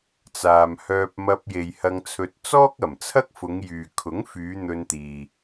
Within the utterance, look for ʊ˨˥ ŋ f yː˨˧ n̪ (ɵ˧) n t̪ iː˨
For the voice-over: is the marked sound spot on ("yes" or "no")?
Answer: yes